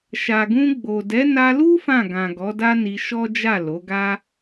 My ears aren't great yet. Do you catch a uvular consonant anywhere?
no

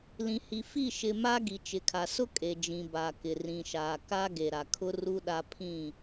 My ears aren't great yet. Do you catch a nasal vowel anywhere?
yes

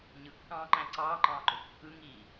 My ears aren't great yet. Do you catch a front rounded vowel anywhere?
no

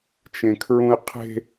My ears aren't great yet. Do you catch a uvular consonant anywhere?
yes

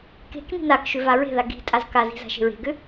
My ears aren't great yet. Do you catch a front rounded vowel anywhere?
yes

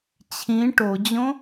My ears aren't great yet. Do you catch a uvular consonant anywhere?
no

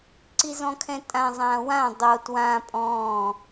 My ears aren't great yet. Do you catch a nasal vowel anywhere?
yes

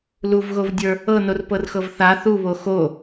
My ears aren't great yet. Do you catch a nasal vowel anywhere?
no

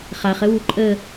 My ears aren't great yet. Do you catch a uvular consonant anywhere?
yes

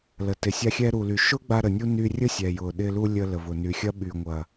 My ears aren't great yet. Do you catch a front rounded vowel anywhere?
yes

